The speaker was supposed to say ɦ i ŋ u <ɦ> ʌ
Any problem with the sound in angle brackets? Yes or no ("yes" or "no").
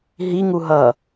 no